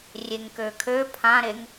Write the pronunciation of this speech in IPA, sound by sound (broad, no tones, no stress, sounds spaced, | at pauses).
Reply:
rʲ e ŋ k ø kʰ ø pʰ ã ɾ e ŋ